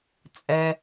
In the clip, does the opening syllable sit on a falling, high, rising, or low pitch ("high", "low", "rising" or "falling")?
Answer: low